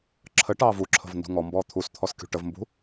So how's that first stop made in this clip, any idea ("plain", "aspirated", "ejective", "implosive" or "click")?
click